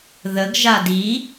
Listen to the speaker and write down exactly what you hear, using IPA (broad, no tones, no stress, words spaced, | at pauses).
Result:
ðəɡʒad i